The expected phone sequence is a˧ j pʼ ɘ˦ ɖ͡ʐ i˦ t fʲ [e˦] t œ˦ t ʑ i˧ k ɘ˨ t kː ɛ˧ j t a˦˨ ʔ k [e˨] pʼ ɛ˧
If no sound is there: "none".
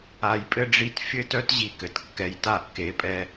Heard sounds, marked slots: ɘ˦, e˨˦

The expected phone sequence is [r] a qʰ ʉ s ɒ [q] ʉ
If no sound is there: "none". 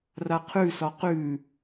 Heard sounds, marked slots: r, q

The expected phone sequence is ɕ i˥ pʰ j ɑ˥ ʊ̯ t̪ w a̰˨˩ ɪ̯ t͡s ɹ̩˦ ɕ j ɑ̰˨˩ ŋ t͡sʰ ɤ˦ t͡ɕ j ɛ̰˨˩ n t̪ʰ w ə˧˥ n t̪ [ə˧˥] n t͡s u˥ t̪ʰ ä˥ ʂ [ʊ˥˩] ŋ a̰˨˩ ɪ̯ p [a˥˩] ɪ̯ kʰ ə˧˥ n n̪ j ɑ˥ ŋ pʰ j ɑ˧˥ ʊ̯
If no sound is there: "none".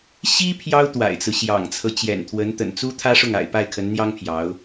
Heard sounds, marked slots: ə̰˨˩, ʊ˥˩, a˥˩

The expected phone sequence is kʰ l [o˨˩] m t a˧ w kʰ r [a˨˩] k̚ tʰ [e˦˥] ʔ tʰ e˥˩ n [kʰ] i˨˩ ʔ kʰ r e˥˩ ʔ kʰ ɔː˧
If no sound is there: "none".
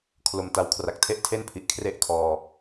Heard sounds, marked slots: o˨˩, a˨˩, e˥˩, pʰ

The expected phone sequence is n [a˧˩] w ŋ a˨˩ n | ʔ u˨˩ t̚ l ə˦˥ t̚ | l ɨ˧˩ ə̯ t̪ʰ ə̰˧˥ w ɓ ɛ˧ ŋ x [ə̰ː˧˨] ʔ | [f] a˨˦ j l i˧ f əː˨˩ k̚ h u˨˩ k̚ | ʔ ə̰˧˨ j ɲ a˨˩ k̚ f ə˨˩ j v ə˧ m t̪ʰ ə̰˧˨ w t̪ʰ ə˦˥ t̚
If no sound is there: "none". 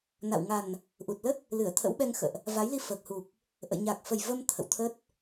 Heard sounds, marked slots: a̰˧˨, ə̰ː˧˨, v

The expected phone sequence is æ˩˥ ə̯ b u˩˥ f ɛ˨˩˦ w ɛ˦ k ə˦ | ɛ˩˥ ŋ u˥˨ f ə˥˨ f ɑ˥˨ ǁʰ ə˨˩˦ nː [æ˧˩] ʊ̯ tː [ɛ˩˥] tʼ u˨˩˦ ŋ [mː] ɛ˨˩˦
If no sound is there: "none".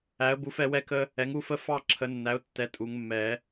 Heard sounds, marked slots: æ˩˥, ɛ˩˥, mː

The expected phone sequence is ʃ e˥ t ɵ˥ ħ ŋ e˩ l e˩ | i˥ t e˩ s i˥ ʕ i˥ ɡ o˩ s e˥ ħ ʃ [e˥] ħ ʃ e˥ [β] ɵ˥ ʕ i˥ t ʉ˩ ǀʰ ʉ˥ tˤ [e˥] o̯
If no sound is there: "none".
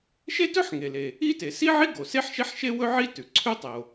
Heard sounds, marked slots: e˥, w, e˩

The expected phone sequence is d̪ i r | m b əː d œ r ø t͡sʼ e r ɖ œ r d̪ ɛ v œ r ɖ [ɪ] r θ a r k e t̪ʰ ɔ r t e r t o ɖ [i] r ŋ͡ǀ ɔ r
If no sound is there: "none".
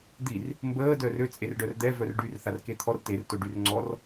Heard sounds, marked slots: y, y

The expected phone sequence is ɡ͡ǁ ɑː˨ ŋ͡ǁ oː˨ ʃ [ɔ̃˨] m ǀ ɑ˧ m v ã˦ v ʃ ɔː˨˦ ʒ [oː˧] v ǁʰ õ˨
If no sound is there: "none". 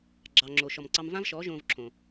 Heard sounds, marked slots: ɔ˨, õː˧

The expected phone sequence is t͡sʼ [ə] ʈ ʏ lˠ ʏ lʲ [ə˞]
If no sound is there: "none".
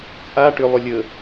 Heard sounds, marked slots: a, ə

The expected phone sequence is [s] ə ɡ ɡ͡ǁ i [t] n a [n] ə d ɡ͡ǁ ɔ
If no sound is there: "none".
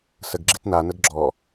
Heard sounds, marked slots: s, t, n

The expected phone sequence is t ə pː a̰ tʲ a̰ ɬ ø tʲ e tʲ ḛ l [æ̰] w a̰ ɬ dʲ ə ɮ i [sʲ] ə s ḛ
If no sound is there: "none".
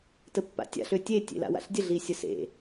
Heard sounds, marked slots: a̰, sʲ

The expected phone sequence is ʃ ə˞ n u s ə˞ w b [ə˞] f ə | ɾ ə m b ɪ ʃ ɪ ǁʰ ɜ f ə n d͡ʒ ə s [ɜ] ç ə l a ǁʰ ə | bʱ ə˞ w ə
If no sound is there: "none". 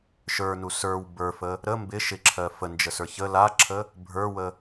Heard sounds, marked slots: ə˞, ə˞

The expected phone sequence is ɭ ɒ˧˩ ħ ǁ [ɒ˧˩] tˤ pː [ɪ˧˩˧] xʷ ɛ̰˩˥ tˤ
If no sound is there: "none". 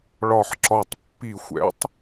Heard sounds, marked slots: ɒ˧˩, i˧˩˧

